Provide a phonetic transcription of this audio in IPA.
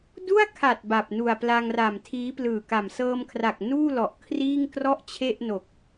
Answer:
du˥˩a̯kʰa˨˩t̚ ba˨˩p̚nu˨˩a̯pla˧ŋra˨˩m tʰiː˦˥plɯː˨˩ka˨˩m sɤː˧mkʰra˨˩k̚ nuː˥˩lɔ˨˩ʔkʰriː˥˩ŋ krɔ˥˩ʔt͡ɕʰe˥˩ʔno˨˩k̚

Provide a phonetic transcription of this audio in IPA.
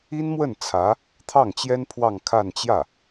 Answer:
i˥nmwə˥˩n t͡sʰä˧˥ | t̪ʰɑ˥˩ŋt͡ɕjɛ˥n pʰwɑ˥˧ŋkʰa˥˧nt͡ɕjä˥˩

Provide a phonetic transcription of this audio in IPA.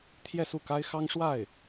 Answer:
t̪ʰjɛ˥˧su˥˩ka˥ɪ̯xɑ˥ŋ ʂwa˥˩ɪ̯

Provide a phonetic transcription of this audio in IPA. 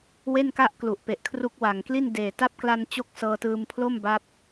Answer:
we˥˩nka˥˩ʔklu˨˩ʔ pe˨˩ʔkʰru˦˥k̚wa˨˩ŋkli˥˩n deː˨˩ ta˦˥p̚kla˧n t͡ɕo˥˩k̚sɤː˧tɯː˧m pʰlo˥˩mba˦˥p̚

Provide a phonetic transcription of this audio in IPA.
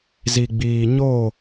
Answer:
zi˨ɡ͡biː˨ ɲo˦˨

